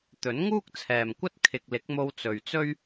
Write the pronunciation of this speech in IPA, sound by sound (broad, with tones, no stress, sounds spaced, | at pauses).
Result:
t̪ ɵ˨˥ n ŋ uː˥ k̚ t͡sʰ ɛː˨ m kʷ ɐ˥ t̚ kʰ ɪ˨ k̚ l ɪ˨˥ k̚ m o˧ w t͡s ɵ˨ ɥ t͡s ɵ˥ ɥ